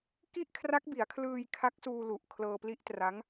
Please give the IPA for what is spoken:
k i˥˩ ʔ kʰ r a˦˥ k̚ b i˩˦ a̯ kʰ l ɯː˧ j kʰ a˦˥ k̚ s uː˧ l u˨˩ ʔ kʰ l ɤː˧ p l i˦˥ ʔ t r a˦˥ ŋ

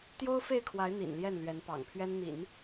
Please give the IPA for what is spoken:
t̪ j o˥ ʊ̯ f e˥˩ ɪ̯ kʰ w a˧˥ ɪ̯ n̪ ḭ˨˩ n l j ɛ˥˩ n l ɥ ɛ˧˥ n p ɑ̰˨˩ ŋ pʰ ɥ ɛ˥ n n̪ ḭ˨˩˦ n

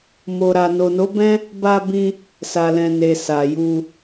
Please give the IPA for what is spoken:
m o˨ ɾ a˨ n o˨ n o˨˦ b ɛ̃˦ | b a˧ b ĩ˧ | s a˨ l ɛ̃˨ n e˨ s a˨ j u˧

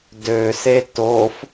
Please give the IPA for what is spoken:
d ø s e t o f

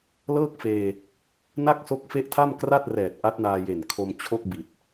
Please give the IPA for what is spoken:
l ɤː˥˩ k̚ f eː˧ | n a˥˩ k̚ s o˦˥ k̚ f e˦˥ ʔ tʰ a˥˩ m k r a˥˩ t̚ r ɛː˨˩ t̚ ʔ a˦˥ t̚ n aː˧ j e˨˩ n kʰ o˧ m t͡ɕʰ o˥˩ k̚ b i˨˩ t̚

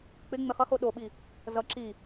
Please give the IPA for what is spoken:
k͡p ɪ ŋ͡m ɪ χ ʌ h o ɗ o ɓ i | z ʌ ǁ i

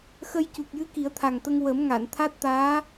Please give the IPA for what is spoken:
x ə˧ j c u˨˩ k̚ j ɨ˧˥ k i˨˩˦ ə̯ t̪ʰ a˨˩ ŋ t̪ ə˧ ŋ w ə˨˩˦ m ŋ a˨˩˨ n t̪ʰ a˦˥ t̚ t̪ aː˧˥

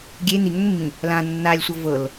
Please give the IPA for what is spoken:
ɡʲ e n̪ i ŋ ʏ ŋ mː ĩ | l ã nː a lʲ sʷ ɤ v ɤ l

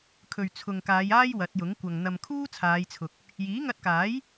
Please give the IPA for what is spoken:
kʰ ɵ˨ ɥ t͡sʰ ʊ˨ ŋ k aː˨˧ j aː˥ j w ɐ˨˥ t̚ j ʊ˨˥ ŋ kʷ ɐ˨ ŋ n̪ ɐ˨ m kʰ uː˥ t͡sʰ aː˨˧ j t͡sʰ ʊ˨ k̚ | j iː˨˥ ŋ ɐ˧ t̚ k aː˨˥ j

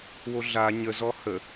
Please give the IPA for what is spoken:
w o ɮ a ɲ ə z ɔ h ə

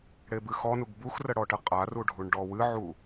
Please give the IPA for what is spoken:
ɽ e b ɨ x ɔ n u ɡ b u x r ə ɽ ɔ ʈ ə qʼ a r u ɖʱ u ɳ ɖ ɔ w ɨ ʕ u

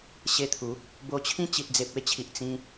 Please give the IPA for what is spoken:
ɕ e˧ t̪ʰ u˨˦ | b o˧ t͡ɕʰ ĩ˦ t͡ɕ i˨ t̚ d͡z e˨ p̚ e˥˧ t͡ɕʰ i˨ ʔ t͡s ĩ˧

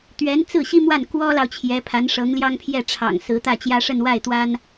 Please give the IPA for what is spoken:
t̪ ɥ ɛ˧˥ n t͡s ɹ̩˥˩ ɕ i˥ m w a˥˩ n k w ɔ˥ l ɑ˨ ʊ̯ t͡ɕʰ j ɛ˧˥ pʰ a˧˥ n ʂ ɤ˧˥ ŋ l j ɑ˥ ŋ pʰ j ɛ˥˩ ʈ͡ʂʰ ɑ̰˨˩ ŋ s ɹ̩˧˥ t̪ ä˥˩ t͡ɕ j ä˥ ʂ ə˥˧ n w a˥˩ ɪ̯ t̪ w a˥ n

